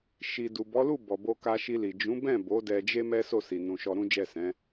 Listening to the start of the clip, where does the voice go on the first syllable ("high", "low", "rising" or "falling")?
low